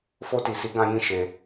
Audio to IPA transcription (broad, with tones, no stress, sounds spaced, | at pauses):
f o˧ t i˨ s i˨˦ ɡ ã˧ j ĩ˧ ʃ e˧